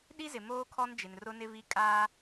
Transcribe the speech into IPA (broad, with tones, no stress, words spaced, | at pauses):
ɗi˦zɪ˨ moː˦kʰɔ˦n d͡ʒɪ˨nrʊ˦nɪ˦vi˦ kʼaː˦